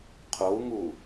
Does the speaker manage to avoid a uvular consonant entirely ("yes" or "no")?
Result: no